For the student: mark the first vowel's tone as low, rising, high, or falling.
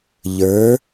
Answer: rising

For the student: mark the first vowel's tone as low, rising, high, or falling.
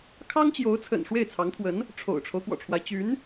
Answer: high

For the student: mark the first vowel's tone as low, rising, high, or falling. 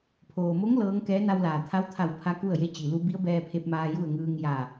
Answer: low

